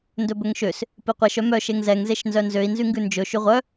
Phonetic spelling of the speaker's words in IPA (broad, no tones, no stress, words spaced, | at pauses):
ndɵbɵŋʃøs | piqʷeʃ œmœ ʃeŋzɛŋ zeʃnzœnzøi̯ nzyŋɡʉnd͡ʒɵ ʃyʁʷœ